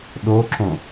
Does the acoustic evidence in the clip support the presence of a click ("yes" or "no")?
yes